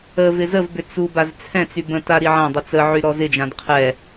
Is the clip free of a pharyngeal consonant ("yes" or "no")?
no